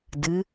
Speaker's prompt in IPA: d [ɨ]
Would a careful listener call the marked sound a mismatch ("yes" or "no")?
no